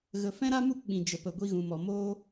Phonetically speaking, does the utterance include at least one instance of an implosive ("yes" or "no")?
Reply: yes